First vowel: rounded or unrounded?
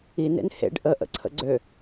unrounded